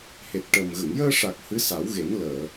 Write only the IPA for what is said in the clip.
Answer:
h e˨˩ t̚ ʈ əː˨˩ m ɣ ə˨˩˨ ŋ j əː˧ ʂ a˨˩ k̚ h ɨ˧˥ s a˨˩˦ w ɣ e˨˩˦ n l əː˨˩˨

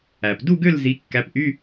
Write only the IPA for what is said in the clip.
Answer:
æ˩ p d u˥˨ ɡ ø˥˨ l z i˨˦ kː æ˨˦ p ʔ y˧˥˧

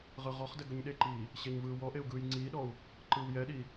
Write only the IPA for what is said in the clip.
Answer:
ʁ ɯ ʁ ɔ χ d ɛ ɡ ɵ ɲ ɗ e ǃ iː | ɕ e ɲ v ɯː w ɔ ʔ e u̯ ɡ ɯː j ŋ͡ǀ iː ɗ ɔ u̯ | ǃ ɯː w j ɛ ɗ i

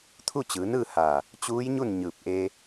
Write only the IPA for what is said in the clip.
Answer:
t̪ʰ u˥˨ t͡ɕ ɯː˩˧ n ɯː˥˨ h aː˧˩ | t͡ɕ uː˧˥ j ɲ u˥˨ n ɲ ɯː˧˩ p̚ ʔ eː˧

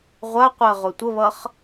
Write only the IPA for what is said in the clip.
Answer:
ʁʷ a qʷ ɜ ʁ o tʷ ə β ʌ χ

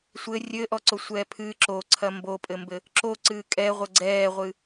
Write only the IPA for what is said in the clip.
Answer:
sʷ ɘ rʲ ɘ ʔ ɔ ǀ o sʷ ɛː pʰ ɨː ǁ o ǀʰ ɐ m b o pʼ ɘ m b ɘ | ǁ o ǀ ɨː kʼ ɛ ʁʷ ɘ ɡ͡ǀ ɛː ʁʷ ɨ

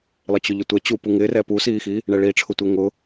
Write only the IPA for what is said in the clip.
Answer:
lˠ ɪ t͡ɕ ʊ ʎ ʊ tʷ ɛ t͡ɕ u p u ŋ ɪ r ɛ p u s iː x i | ɳ ɛ ɭ i ʈ͡ʂʰ ʊ tʷ e ŋ ʊ

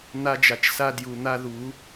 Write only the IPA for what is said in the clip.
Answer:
n̪ a˦ d͡ʒ a˨ t͡ʃ s a˦ d j u˨ n̪ a˦ ð u˨˦

